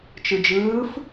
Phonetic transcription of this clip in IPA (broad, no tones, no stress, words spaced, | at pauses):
t͡ʃɯd͡ʒɯːf